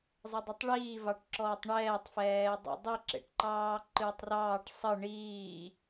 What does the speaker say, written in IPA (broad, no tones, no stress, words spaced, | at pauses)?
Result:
zˤədˤitˤɭiː vɑʈǁɔːtˤɳɛːtˤ fɛːdˤə̰ dˤiǁḛʈǃɑː ǃɨːtˤrɑːʈ sˤə ɳiː